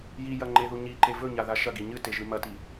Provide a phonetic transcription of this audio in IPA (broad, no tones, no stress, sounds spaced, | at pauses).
j i j ɐ ŋ͡ǃ e ð u ɲ i ǃ e v ɵ ɲ a ð a ʃ ɐ ɡ i ɲ ɨ t e ʒ ɨ m ɐ t i